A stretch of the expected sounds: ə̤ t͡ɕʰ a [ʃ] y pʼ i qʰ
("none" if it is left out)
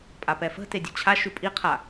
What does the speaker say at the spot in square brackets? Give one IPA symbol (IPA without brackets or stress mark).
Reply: ʃ